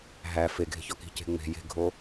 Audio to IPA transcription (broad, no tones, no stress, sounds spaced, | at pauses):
ɦ æ f e ɡʱ e̤ ç ɒ k i̤ c e̤ ŋ͡m e̤ j e̤ ɡʱ o